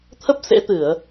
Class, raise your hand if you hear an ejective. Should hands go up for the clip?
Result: no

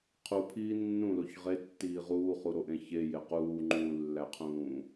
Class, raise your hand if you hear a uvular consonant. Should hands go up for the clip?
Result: yes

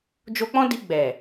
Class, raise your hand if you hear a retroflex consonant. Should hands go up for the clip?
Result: no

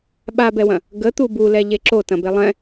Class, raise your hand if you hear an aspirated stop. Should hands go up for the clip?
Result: no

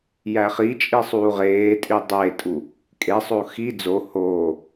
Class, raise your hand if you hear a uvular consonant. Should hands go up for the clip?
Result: yes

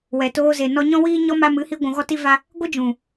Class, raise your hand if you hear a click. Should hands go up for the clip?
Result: no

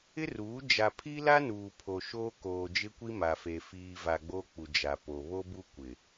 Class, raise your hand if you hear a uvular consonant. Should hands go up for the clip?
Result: no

